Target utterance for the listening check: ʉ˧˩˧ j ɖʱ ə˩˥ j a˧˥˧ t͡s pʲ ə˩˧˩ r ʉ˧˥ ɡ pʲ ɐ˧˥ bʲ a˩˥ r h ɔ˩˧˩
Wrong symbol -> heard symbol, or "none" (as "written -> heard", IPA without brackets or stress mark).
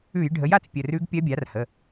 ɔ˩˧˩ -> ə˩˧˩